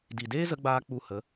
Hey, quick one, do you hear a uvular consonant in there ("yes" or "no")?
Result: no